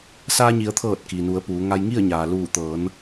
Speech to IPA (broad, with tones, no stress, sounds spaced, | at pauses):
s aː˧ ɲ i˩˧ ə̯ t̪ʰ ɤː˧˩ t̚ k i˩ n u˩˧ ə̯ p uː˩˧ ŋ a˧ j ŋ i˥˨ ə̯ ɲ aː˩ l uː˧˩ t̪ ɤː˩˧ n